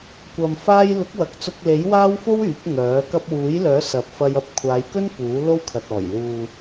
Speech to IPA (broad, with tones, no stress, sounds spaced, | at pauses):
kʷ ɐ˨ m f aː˧ j l ʊ˨˥ k̚ w ɐ˨˥ k̚ t͡s ʊ˧ k̚ l e˨˥ j w aː˥ w f o˥ w yː˨˥ p̚ ŋ œː˨˥ k ɐ˧ p̚ w uː˨˥ j l œː˨˥ s ɐ˨˥ p̚ f ɐ˧ j ɐ˨˥ p̚ kʷʰ aː˨˧ j k ɵ˥ n p uː˨˥ l o˥ w kʰ ɐ˨ t̚ ɔː˨˩ j l uː˨